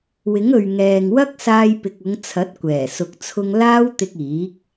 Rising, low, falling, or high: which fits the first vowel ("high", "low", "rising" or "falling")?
rising